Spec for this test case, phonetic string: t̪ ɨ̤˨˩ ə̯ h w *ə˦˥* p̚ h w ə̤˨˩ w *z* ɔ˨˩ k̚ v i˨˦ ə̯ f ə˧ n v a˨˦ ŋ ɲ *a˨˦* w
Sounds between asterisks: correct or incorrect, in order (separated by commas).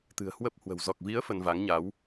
correct, correct, correct